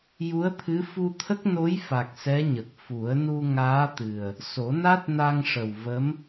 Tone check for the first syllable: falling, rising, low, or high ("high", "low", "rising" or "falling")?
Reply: rising